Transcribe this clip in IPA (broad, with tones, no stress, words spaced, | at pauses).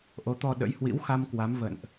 ʔo˨˦t̪ɔ˧ɗə̰˧˥j hwḭ˧˥wxa˧m kwa˨˦mvə̰˧˨nʔ